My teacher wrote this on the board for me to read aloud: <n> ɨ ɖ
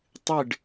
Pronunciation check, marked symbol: incorrect: tˤ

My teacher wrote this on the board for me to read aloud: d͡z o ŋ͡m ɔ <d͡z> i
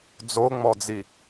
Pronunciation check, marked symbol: correct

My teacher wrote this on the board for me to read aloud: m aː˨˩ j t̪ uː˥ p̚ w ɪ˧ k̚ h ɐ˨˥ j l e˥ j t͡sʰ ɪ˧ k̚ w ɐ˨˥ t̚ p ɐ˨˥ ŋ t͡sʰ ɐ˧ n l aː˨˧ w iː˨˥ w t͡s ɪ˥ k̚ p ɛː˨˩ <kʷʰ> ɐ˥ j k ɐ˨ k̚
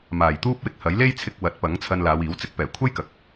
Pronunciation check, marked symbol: correct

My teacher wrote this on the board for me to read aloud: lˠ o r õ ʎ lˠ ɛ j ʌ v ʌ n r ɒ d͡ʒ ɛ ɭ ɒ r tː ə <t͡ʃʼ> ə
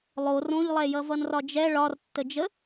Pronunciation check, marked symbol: incorrect: d͡ʒ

